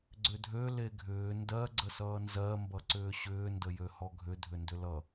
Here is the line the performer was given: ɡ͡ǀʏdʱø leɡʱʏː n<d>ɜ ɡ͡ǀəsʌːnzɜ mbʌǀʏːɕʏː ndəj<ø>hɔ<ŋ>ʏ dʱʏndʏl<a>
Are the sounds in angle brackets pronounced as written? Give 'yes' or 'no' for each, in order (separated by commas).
yes, yes, no, no